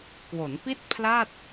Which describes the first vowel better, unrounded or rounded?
rounded